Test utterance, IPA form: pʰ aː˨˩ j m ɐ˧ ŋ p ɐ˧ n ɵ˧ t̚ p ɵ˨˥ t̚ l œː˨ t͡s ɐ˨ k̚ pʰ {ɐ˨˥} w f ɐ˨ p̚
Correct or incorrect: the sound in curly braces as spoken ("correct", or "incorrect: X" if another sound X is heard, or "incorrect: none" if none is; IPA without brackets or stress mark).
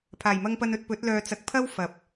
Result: incorrect: ɐ˥